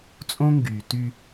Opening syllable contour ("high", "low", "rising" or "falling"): high